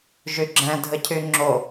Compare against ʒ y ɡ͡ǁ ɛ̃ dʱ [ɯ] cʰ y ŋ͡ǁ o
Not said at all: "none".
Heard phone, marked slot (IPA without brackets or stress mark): ə